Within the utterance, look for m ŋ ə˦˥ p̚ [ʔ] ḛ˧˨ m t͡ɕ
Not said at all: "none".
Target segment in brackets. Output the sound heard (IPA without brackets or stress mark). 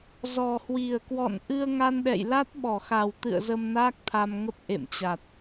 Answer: ʔ